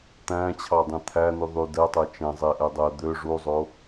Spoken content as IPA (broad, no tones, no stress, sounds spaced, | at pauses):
t̪ æ̃ t͡ɕʰ ɑ dˤ ĩ t̪ʰ æ n y ðˤ y d ɛ tˤ ɛ t͡ʃ ɛ̃ zˤ e ʔ ɛ dˤ ɛ d̪ ø ʐ u zˤ o